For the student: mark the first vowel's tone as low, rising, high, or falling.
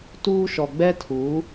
high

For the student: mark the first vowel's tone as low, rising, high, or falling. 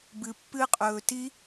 low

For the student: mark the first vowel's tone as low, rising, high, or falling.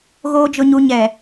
low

